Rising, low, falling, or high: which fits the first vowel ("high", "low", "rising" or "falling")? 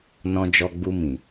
high